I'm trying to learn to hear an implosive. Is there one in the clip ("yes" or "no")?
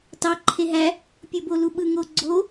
yes